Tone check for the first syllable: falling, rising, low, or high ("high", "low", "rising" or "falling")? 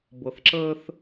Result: low